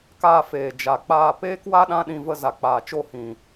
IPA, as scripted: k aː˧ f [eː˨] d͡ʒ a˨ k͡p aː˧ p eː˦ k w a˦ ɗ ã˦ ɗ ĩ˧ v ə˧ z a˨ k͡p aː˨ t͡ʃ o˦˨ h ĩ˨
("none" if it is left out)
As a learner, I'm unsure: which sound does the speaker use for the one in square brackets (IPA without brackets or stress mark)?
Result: eː˨